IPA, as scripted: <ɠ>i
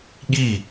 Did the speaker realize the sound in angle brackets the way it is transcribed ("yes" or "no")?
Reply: yes